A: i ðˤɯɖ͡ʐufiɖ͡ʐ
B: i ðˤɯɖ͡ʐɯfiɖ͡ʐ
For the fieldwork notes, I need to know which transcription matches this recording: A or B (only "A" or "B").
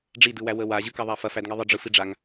B